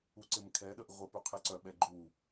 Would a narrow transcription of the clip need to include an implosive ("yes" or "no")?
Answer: yes